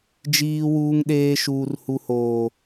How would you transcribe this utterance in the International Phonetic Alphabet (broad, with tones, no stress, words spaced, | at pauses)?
d͡ʒiː˦wuː˦ŋɗeː˦ʃuː˦r hu˦hoː˦